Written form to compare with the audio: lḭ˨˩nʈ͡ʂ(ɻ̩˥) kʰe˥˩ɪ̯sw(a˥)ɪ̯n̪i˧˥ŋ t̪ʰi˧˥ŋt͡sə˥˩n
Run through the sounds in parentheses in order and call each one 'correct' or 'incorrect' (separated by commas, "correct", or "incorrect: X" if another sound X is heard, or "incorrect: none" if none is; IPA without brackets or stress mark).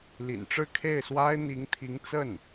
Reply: incorrect: ɻ̩˥˧, correct